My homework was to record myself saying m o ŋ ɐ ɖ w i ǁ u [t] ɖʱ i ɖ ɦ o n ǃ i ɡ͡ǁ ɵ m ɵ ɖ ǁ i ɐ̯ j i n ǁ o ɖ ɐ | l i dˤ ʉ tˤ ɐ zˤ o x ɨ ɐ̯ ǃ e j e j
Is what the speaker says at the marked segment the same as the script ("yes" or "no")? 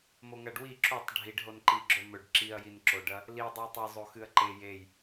no